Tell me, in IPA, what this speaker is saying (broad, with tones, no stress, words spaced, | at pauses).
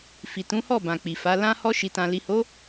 fi˨tũ˨˦hɔ˦˨ bã˨k͡pi˨fa˨˦ lã˧hɔ˧ ʃi˨tã˨ li˨ho˨˦